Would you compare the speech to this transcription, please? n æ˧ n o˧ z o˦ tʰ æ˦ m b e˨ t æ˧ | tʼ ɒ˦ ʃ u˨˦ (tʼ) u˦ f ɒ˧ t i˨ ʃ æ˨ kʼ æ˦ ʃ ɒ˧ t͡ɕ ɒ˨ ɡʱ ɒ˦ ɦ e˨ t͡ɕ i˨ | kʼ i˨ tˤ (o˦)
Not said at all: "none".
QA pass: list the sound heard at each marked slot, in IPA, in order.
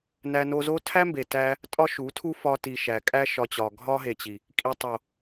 tʰ, o˨

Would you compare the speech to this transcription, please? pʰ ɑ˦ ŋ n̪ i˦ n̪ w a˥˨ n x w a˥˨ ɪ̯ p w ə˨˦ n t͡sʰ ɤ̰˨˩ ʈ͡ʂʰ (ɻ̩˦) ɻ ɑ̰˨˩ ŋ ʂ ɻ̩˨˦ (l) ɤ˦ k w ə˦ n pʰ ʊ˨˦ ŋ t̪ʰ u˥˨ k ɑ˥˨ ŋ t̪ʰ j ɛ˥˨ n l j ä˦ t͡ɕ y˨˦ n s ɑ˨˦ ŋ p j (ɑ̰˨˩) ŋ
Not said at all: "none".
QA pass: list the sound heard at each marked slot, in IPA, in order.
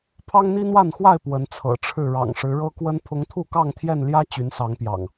ɻ̩˥˨, ɻ, ɑ̰˨˩

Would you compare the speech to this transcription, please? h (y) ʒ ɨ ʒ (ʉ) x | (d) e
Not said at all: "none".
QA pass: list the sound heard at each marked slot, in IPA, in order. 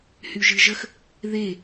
y, ə, ð

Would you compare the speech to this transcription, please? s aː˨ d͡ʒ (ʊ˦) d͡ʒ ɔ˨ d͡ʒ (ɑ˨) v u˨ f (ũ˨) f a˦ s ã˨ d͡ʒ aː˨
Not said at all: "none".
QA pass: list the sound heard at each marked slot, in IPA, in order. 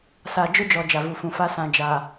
ʊ˦, a˨, ũ˨

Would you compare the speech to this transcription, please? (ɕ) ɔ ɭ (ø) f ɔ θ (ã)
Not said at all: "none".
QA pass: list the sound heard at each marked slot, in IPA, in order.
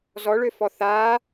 z, ø, a

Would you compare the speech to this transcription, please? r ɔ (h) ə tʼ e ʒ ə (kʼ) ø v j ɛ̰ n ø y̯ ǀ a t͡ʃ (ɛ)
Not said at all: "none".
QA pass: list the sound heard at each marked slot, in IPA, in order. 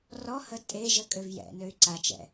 h, kʼ, ɛ̰

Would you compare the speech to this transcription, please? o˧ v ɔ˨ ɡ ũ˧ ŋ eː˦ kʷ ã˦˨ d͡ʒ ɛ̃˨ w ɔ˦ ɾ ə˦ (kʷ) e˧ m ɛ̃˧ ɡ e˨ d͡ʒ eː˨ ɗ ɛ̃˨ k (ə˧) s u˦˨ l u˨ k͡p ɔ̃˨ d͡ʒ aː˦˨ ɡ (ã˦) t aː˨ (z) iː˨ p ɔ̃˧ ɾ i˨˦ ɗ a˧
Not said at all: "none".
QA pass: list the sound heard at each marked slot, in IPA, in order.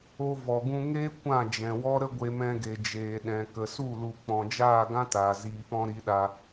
ɡʷ, ə˨, ã˦, z

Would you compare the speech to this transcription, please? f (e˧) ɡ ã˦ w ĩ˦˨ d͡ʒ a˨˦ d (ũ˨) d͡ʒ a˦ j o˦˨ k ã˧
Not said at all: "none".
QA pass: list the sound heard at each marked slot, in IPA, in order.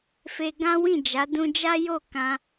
e˧, ũ˧

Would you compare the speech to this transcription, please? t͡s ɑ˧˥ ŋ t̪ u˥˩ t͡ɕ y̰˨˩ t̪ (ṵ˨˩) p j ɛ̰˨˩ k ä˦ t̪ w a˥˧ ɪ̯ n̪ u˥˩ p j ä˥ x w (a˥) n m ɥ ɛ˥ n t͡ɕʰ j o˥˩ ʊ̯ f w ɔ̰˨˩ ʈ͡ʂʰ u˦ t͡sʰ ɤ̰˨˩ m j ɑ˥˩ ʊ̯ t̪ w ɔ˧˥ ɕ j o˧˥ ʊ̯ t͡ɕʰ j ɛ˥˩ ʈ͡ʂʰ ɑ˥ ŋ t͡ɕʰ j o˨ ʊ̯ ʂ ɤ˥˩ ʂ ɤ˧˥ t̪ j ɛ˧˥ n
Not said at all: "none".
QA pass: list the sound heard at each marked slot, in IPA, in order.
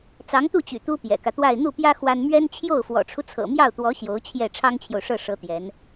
u˥, a˥

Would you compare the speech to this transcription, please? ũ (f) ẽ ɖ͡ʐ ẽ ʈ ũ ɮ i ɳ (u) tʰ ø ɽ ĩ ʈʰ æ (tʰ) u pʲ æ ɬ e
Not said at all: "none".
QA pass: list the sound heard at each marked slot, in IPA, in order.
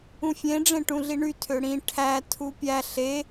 fʲ, y, tʰ

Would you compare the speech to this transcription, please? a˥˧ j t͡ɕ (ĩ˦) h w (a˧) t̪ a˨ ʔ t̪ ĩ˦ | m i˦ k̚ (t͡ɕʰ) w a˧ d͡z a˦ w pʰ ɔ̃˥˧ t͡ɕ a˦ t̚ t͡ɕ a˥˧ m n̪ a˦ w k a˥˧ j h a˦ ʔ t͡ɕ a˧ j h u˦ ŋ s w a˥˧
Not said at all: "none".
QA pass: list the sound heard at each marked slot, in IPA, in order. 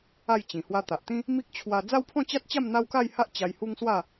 ĩ˨˩, a˧, t͡ɕʰ

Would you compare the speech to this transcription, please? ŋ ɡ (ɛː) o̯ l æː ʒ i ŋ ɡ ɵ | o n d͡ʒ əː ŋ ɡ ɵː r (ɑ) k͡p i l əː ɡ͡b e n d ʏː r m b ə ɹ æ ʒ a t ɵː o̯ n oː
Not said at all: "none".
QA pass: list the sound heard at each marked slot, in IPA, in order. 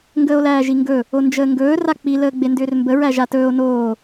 əː, a

